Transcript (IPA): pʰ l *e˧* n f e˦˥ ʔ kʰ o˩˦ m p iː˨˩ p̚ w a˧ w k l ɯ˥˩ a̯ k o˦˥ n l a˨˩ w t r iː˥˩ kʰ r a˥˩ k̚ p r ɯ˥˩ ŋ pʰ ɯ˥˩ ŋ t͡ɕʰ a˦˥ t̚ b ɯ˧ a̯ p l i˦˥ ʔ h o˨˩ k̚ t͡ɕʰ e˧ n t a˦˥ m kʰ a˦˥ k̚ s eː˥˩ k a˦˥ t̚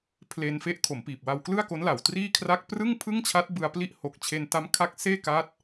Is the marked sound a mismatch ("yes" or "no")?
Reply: no